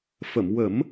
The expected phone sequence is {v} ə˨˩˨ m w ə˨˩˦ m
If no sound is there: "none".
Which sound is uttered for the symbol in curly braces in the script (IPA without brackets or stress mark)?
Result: f